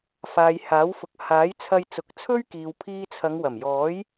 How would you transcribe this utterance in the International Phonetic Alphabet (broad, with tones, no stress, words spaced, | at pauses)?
faː˨jhaː˨˥wfʊ˨k̚ haː˨˥jt͡sʰɐ˧j t͡sʊ˨˥k̚t͡sʰɵ˥ɥkiː˨w pʰiː˧t͡sʰɐ˨˧ŋwɐ˨˩m jɔː˨˥j